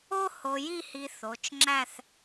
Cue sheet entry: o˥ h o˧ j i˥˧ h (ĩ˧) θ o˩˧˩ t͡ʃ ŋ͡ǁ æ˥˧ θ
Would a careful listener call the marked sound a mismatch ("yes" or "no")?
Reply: yes